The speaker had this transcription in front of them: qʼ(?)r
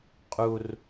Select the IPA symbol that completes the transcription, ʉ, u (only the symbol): u